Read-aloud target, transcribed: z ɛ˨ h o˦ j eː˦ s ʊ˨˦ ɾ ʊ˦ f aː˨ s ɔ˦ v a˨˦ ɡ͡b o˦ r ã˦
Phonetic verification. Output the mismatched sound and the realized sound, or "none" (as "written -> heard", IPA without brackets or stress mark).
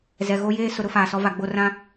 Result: h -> ɣ